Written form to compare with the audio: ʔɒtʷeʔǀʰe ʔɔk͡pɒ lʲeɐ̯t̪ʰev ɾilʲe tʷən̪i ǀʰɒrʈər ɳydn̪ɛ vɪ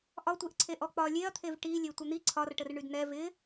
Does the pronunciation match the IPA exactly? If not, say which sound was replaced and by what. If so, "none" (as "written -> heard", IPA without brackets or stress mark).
ɾ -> ʈ